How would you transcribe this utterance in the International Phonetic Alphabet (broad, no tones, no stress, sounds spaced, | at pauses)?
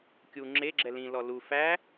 kʲ u ŋ͡ǁ e ɡ͡ǁ ɛ l ĩ l ɔ l u f æ